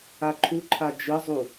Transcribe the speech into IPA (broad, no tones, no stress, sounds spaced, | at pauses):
a ǃʰ u ǃʰ a d͡ʒ ɯ zˤ u